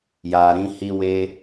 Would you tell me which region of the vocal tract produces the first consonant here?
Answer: palate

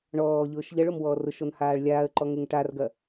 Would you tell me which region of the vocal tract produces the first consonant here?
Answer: retroflex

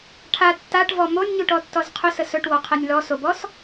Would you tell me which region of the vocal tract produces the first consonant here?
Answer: retroflex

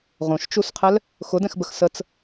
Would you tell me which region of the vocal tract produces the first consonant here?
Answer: uvula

